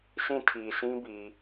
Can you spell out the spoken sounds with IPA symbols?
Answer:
sʰĩ˦˨tʰi˨sʰĩ˦bi˨

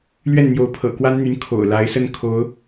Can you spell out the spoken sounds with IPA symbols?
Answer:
lɥɛ˥˩n n̪jo˧˥ʊ̯pʰɤ̰˨˩kwa˥nn̪y˧˥n kʰo̰˨˩ʊ̯la˧˥ɪ̯sə˥˩n kʰo˧˥ʊ̯

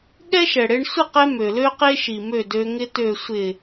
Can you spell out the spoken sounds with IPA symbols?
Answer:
ɠɛ˦ʃɛ˨ɽe˧ɳ sʷə˦˨qɛ˧ mø˨lø˦qe˦ʃi˨ mø˦˨dø˧ŋɪ˦ tø˨sʷɪ˨

